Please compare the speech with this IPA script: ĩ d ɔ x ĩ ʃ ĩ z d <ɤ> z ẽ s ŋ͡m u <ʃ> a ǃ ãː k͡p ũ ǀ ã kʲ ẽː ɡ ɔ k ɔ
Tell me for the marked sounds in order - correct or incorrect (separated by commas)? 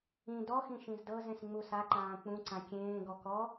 correct, incorrect